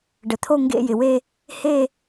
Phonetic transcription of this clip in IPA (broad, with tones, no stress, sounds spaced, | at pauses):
ɖ ə˩ t̪ʰ o˥˧ ŋ ɡ ḛ˥˧ j ɪ˩ w e˥˧ | h e˥˧